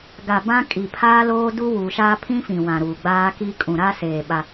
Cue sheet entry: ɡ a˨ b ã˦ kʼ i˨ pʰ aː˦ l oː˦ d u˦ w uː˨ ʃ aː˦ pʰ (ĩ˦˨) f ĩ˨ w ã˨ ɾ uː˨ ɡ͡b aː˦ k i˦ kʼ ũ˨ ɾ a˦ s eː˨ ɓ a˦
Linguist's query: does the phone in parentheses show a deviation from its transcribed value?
yes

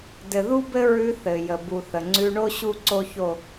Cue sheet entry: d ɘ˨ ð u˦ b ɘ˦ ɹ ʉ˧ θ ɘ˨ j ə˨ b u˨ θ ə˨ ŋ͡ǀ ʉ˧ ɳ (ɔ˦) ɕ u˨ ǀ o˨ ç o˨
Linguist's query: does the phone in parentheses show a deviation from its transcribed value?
yes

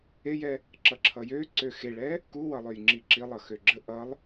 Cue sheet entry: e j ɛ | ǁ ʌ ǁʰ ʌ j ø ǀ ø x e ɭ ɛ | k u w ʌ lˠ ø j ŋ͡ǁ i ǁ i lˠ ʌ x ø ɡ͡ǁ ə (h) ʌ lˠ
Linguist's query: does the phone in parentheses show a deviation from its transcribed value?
yes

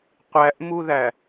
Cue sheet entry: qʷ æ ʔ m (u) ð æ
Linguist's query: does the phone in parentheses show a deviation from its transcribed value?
no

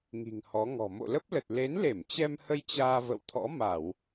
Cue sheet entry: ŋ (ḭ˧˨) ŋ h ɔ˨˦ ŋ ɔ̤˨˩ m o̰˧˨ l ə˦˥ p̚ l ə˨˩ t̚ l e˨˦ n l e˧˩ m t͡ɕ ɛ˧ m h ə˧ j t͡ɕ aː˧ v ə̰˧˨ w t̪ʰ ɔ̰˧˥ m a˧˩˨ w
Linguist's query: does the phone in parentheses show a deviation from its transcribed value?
yes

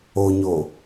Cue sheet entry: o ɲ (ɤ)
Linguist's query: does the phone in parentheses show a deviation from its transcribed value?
yes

